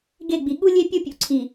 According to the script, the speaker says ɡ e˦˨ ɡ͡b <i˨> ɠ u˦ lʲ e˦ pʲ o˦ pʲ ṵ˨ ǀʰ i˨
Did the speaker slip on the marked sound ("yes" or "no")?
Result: no